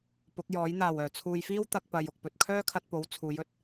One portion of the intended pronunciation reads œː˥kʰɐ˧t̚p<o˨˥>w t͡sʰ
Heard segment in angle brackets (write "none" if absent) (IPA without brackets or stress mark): o˨˥